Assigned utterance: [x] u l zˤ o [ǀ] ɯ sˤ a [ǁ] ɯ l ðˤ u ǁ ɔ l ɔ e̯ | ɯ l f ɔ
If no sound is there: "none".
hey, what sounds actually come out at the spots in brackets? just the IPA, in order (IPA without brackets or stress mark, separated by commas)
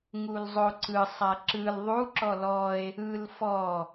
ŋ, ǀ, ǁ